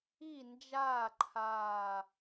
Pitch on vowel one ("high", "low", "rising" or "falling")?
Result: falling